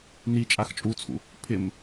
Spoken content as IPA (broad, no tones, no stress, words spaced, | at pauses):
ni t͡ʃʼaxt͡ʃʼut͡sʰṵ | pʰɪm